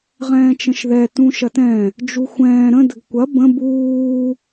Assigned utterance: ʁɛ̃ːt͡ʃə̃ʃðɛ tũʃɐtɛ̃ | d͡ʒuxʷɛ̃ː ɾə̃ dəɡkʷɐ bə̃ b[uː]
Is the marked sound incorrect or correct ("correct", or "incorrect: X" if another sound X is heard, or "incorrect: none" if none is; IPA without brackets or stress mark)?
correct